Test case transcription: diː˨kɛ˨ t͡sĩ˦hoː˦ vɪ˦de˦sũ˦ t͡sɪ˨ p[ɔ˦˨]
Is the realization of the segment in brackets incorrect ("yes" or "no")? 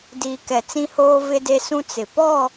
no